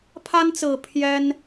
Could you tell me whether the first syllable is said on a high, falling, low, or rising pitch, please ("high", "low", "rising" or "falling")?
high